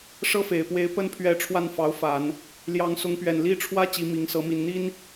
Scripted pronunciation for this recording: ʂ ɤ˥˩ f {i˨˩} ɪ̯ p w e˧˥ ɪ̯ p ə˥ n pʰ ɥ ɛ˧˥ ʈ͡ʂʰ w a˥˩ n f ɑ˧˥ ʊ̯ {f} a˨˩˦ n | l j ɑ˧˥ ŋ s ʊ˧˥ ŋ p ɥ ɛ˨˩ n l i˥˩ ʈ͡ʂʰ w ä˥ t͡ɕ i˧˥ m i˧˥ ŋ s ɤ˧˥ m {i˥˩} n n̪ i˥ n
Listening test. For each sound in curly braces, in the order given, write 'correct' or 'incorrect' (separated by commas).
incorrect, correct, incorrect